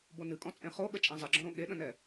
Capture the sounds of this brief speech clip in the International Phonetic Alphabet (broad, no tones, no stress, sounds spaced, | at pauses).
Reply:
b o n ɨ kʼ ɔ̃ t͡sʼ ẽ χ o ɠ ə t͡ʃʼ ã zˤ ə ɡ͡ǁ ɔ̃ ɾ õ ɠ e ɗ ə̃ n ɛ